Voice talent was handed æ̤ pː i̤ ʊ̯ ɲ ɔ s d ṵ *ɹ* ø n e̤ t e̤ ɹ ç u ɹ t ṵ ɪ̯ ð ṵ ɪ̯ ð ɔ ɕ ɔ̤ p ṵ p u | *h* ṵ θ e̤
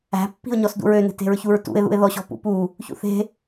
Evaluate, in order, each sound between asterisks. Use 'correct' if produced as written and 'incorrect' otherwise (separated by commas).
correct, incorrect